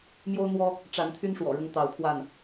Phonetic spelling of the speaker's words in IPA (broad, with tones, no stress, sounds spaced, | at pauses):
m j o˦ ʊ̯ n̪ w ɔ˦ | ʈ͡ʂ a˨˦ n t̪ʰ y˦ n ʂ w ɔ̰˨˩ ɻ ʊ˦ ŋ t̪ ɑ˨˦ ʊ̯ pʰ w a˥˨ n